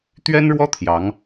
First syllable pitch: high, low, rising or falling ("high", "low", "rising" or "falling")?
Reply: high